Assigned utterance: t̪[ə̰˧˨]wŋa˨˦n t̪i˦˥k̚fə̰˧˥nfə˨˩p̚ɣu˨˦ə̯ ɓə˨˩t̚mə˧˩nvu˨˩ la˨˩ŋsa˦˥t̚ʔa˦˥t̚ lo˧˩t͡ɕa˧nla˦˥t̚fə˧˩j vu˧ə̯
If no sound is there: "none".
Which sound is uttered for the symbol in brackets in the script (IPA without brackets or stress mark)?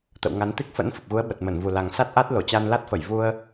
ə̰˧˨